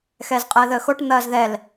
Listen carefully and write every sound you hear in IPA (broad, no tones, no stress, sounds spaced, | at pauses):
x ɛː z qʼ əː ð əː x o ʈ n̪ ɐː z ð ɛ l